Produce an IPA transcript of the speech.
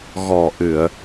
ɣ ɔ˨˩ ʔ ɨ˨˩˨ ə̯

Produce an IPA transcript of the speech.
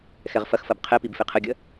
x ɛ ʁ f ɐ x f ɐ b qʰ ɛ p i b f e qʰ ə ɡʲ ɐ

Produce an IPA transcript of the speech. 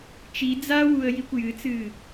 t͡ʃ i d͡z a w u ə̯ j i kʷ j ɨ t͡s ɨː

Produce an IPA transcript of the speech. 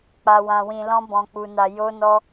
k͡p a˧ w ã˧ w ĩ˧ l ɔ̃˦ b ɔ̃˧ k͡p u˧ n a˧ j o˦ n ɔ˦

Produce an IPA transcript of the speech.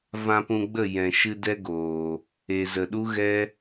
v ã˧ p ũ˧ ɡ͡b ə˦˨ j ɛ̃˨ ʃ ɨ˧ d ɛ˦ ɡ oː˨ | e˨ z ə˨ ɗ u˦ ɣ ɛ˦

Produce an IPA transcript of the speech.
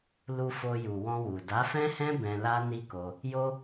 l u˧ f o˧ j u˨ w ɔ̃˧ w u˨ d a˨˦ f ɛ̃˦ h ɛ̃˦ b ɛ̃˧ l a˦ n i˦ k o˧ | j o˧

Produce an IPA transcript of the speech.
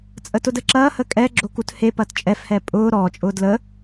t͡sʼ ə t ʊ d ə ǁ ɐː h ə kʼ ɛ ɡ͡ǁ o k u t h e p ɐ t t͡ʃʼ ɛ f h ɛ pʼ ʊː ɾ ɔː t͡ʃʼ ʊː d l ə

